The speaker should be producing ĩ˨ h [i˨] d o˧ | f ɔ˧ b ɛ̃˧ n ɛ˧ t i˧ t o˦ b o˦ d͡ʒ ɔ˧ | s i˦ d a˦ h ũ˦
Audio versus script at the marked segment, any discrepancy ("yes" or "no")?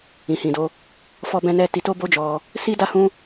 yes